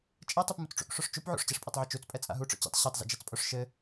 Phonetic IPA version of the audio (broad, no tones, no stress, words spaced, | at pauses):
t͡ʃʼɛtˤup mut͡sʈ͡ʂṵkʂoʂ t͡ʃup ʕṵʂt͡ɕɛʂpʼɛtˤʕɨ t͡ʃut͡spʼɛ t͡sʼa̰ɦuʈ͡ʂɔ̰ t͡ɕḭtˤ ɕitˤzḭd͡ʒɛt͡spʼoʂ ʃɘ